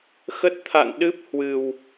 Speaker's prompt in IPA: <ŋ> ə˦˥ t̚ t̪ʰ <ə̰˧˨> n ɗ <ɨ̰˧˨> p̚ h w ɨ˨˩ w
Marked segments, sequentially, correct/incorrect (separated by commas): incorrect, incorrect, incorrect